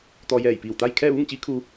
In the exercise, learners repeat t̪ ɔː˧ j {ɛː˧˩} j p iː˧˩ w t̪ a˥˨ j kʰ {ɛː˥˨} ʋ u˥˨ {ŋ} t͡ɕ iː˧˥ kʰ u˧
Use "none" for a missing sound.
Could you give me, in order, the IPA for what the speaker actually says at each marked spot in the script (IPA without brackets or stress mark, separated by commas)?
ɛː˧˩, ɛː˥˨, ŋ